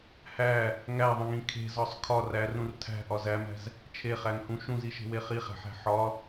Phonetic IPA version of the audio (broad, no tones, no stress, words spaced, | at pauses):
hæ | ŋæðˤĩŋĩ kʰe̤zɒsˤ kʰɒ rærũr tʰæ̤ʔɒz æmæ̤z | t͡ʃʰeχæŋhũ ʃũziʃe̤we χiχæ̤ħæ̤ ħɒ